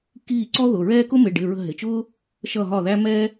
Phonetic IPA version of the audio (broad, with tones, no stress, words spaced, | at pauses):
kiː˦˨ǀɔ˥ ðʊ˩˧˩ɹɛː˥ kʊ˥mɪ˩˧˩ɖɪ˩˧˩ ɹə̤˦˨ɦɪ˩˧˩t͡ʃʊː˥ | ʃʌ˦˨ɦɒ˦˨ðæ˥ mɛ˥